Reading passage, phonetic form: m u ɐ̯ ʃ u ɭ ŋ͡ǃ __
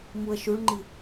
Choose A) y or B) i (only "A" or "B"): B